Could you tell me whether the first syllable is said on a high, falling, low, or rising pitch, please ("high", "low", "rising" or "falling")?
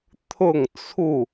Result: falling